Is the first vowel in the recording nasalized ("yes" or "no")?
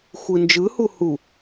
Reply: no